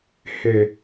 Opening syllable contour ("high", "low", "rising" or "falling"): low